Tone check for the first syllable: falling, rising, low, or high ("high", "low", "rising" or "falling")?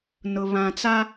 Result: low